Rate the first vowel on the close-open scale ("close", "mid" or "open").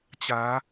open